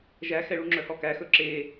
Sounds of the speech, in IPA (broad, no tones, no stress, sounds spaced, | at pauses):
ʒ æ x ɛ ɭ u ŋ͡ǁ œ h ɔ k æ x ɵ ǁ e